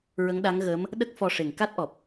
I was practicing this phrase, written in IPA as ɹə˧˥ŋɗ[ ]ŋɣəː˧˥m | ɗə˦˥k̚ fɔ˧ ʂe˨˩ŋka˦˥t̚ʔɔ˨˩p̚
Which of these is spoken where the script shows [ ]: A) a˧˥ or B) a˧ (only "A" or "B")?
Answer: A